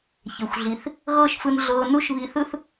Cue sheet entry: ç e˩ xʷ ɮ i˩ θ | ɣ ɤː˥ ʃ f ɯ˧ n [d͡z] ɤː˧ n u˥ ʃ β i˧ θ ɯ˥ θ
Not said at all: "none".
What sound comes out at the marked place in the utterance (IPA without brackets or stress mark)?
ɮ